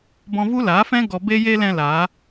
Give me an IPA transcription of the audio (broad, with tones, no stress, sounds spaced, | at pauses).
b ɔ̃˧ v u˦ l aː˨˦ f ɛ̃˦ ɡ ɔ˧ b e˦ j e˦ l ɛ̃˧ l aː˨˦